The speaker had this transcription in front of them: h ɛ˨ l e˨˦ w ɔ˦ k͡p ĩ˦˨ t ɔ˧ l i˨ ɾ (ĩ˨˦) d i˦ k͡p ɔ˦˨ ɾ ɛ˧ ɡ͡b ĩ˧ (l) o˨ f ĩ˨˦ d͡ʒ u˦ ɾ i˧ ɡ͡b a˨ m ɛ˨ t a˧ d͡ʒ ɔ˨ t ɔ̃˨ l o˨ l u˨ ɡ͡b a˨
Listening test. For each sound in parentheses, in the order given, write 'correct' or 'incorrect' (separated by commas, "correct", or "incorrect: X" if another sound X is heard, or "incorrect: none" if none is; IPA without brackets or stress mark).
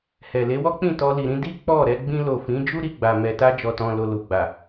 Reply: correct, correct